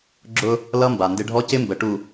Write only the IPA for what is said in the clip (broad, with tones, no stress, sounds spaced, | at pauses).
ɡ͡ǁ ʊ˦ | l ʌ˦ m b a˨ n d ɪ˦ ɖʱ ɔ˦ c ɪ˦ m b ə˨ ʈ u˨